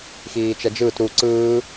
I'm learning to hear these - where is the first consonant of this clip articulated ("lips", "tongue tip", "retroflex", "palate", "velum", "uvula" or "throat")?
velum